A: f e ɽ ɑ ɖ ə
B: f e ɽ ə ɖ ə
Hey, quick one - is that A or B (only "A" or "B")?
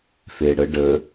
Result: B